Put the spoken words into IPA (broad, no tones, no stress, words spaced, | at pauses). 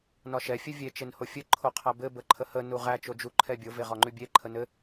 nɒʃɛ fʲɘvʲe t͡ʃenhofʲɘ ǃʰoqʰæbɘ bəǃʰəhə nuʁæ t͡ʃod͡ʒu ǃʰɛbʲo veʁɒŋ͡ǃʉbʲe ǃʰənɘ